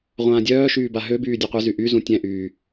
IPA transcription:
ʁʷ ãː dʲ œː ʃ yː b a ɦ ø b yː dʲ u qʷ ɛ z y ʔ y z ũ tʲ ɛ̃ ʔ yː

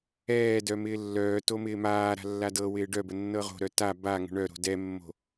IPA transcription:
ɛː d œ m ɪː lː œː t o m ɪː m aː ɾ a̤ lː a d ɤ w ɪː ɖ œ b ə nː ɤ ʁ o̤ ɾ œ t a b a ŋ ə̤ ɳ œ ɾ o̤ d ɛ mː o̤

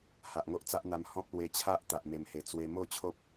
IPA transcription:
h a˨ ʔ ŋ o˦ ʔ t͡s a˦ ʔ n̪ a˧ m h ɔ̃˦ p̚ l w e˧ t͡ɕʰ a˦ ʔ t̪ a˨ ʔ m e˨˩ m h e˨˩ t͡s w e˧ m o˥˧ t͡ɕʰ o˦ p̚

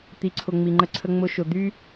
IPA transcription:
t̪ i˨ ǀʰ ʊ˨ ŋ͡m i˨ ŋ͡ǃ ə˧ ǀʰ ə˧ ŋ͡m ʊ˧ ʃ ʊ˨ d̪ y˧

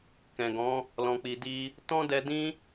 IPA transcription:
k ɛ̃˨ ɡ ɔ̃˨˦ | l ɔ̃˧ k͡p i˧ d i˦ | t ɔ̃˦ d ɛ˧ d ĩ˦

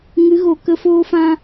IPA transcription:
ŋ ɨ˨˦ ɣ o˨ k ə˧ f oː˧ f ã˧

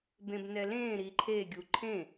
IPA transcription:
b ẽ b n ɛ l ẽː ɾ i ǃʰ e ɡʲ u ǃʰ ẽ

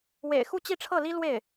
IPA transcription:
w ḛ˨˩ ɪ̯ x u˥˧ t͡ɕ i˥˧ ʈ͡ʂʰ ɤ˥˩ l i˥ l w e˥˩ ɪ̯

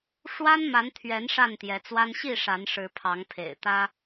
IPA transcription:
ʂ w a˦ n m a˨˦ n t̪ʰ ɥ ɛ˨˦ n ʂ a˥˨ n t̪ j ɛ˨˦ t͡s w a˦ n ɕ i˥˨ ʂ a˨˦ n ʂ ɻ̩˨˦ pʰ ɑ˨˦ ŋ pʰ ḛ˨˩ ɪ̯ t̪ ä˦

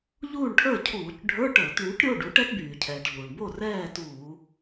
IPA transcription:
ʎ uː˥˨ ɳ ʈʰ ə˞˥˨ cʰ uː˧˩˧ c ɖʱ ə˞˧˥˧ ʈ ə˞˧˩˧ t ɳ yː˩˥ ʈ ɾʲ o˧˥˧ ɖ u˩˥ ʈ ɛ˦˥ t b yː˩ cʰ ɛː˩ ʈ ʎ uː˩ ɳ b o˥˨ r ɛː˥˨ t uː˧˩˧

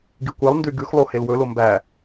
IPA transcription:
ɡ i kʷ e lˠ n d y ɡ ʉ x lˠ o h e l w ɵ l o m b æ

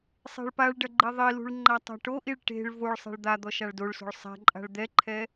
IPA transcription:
sˤ e̤ ɭ p a ɭ ɖ ɐ ɡ͡ǃ e ðˤ i l ṳ ɭ ŋ͡ǃ a tˤ a̤ ʈ o ʔ i ɭ ʈ e̤ ɭ v o ɭ sˤ ɛ̤ ɭ d̪ a d̪ ɔ ʃ a ɭ d o ɭ s o̤ ɭ sˤ ɛ̤ ǃʼ a̤ ɭ d̪ ɛ ǃʰ ɛ

